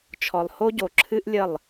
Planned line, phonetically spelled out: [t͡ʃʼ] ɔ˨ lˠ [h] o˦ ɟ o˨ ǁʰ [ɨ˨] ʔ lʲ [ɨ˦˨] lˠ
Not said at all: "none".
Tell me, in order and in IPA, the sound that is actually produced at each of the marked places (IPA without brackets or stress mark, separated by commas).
t͡ʃʰ, h, ɨ˦, ə˦˨